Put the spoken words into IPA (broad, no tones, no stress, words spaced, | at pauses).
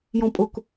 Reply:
jɔ̃pʼʊk